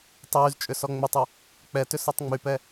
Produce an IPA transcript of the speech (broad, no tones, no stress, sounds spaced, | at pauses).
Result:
tˤ yː z t͡ʃʼ ʏ s ɔ ŋ͡m ʏ tˤ u | k͡p ɛ t ʏ s ɔ tˤ ŋ͡m y p ɛ